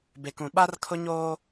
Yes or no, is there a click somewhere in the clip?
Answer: no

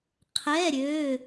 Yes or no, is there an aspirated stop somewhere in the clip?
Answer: yes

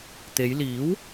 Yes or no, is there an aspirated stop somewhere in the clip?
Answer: no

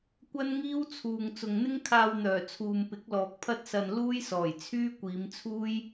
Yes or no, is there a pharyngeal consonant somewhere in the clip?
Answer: no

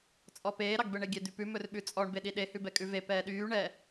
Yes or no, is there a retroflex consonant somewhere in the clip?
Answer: yes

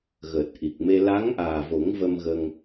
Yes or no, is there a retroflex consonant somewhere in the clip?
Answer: no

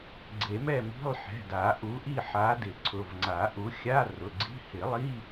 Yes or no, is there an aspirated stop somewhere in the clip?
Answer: yes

